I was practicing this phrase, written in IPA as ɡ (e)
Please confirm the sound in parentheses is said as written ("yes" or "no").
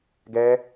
no